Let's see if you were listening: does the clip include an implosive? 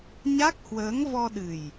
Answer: yes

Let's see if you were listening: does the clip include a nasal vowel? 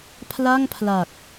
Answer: no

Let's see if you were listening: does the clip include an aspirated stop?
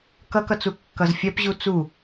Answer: no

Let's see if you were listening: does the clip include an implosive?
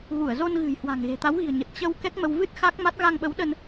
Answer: yes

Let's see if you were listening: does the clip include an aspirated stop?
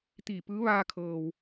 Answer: yes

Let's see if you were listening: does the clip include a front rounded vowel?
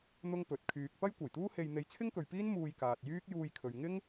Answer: yes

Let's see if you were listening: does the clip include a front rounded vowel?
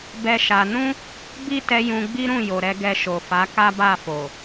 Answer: no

